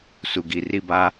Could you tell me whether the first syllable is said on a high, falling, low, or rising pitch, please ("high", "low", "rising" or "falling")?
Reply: low